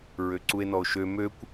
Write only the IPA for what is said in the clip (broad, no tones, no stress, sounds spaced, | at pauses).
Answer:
ɹ ø ǀ u e̯ n ɔ o̯ ʃ ø m ø kʷ